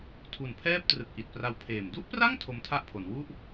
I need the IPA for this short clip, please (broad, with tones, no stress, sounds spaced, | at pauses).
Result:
tʰ u˨˩ n pʰ ɛː˥˩ p̚ t r ɯ˨˩ k̚ ʔ i˨˩ t̚ p r a˦˥ w pʰ eː˨˩ m d u˥˩ ʔ p r a˥˩ ŋ tʰ o˧ m tʰ a˥˩ ʔ pʰ o˩˦ n w u˥˩ ʔ